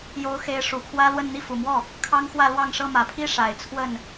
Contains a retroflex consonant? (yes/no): yes